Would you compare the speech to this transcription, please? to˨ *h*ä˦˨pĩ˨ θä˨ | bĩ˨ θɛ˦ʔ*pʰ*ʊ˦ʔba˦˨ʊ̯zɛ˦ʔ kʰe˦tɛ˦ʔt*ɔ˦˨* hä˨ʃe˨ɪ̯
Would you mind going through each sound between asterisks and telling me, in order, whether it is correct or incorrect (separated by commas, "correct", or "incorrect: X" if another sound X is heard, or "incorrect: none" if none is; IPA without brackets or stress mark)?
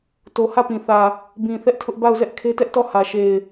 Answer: correct, incorrect: tʰ, correct